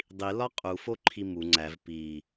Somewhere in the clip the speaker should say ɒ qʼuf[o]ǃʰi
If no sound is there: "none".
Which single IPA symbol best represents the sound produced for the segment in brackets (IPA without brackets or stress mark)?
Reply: o